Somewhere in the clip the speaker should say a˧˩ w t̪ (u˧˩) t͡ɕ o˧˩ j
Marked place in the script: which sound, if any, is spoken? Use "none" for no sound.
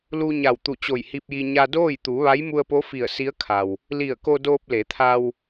u˧˩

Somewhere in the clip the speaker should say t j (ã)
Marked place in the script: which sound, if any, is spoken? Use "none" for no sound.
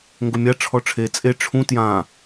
ã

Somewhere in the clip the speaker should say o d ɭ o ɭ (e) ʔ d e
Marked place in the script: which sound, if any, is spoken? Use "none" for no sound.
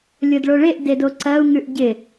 e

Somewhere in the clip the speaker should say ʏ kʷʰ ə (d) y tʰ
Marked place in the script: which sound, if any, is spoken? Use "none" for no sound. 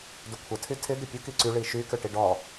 tʰ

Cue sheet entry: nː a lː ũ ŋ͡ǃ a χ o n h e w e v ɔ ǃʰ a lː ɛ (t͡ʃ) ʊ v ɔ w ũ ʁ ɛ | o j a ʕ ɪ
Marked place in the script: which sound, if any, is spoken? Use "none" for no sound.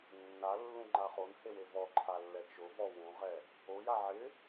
t͡ʃ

